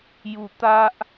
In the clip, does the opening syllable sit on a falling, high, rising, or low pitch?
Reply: low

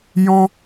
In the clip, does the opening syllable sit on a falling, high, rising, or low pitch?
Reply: high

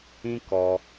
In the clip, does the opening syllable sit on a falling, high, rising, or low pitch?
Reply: high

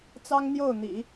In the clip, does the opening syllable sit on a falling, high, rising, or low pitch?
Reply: high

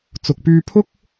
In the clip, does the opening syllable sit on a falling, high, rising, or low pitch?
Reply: low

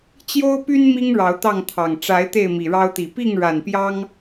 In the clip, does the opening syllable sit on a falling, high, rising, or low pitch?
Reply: high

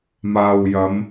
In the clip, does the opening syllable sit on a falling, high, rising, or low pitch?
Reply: low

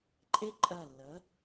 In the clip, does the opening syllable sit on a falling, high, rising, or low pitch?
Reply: high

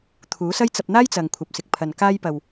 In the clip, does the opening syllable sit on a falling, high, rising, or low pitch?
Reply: rising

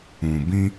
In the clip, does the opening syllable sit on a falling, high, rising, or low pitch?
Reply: low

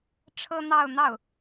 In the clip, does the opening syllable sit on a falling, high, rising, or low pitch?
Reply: high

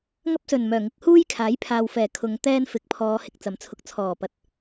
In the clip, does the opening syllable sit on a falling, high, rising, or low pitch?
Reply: high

